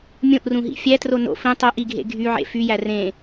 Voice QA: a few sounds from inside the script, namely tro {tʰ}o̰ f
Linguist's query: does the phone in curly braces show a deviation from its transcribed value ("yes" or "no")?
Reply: yes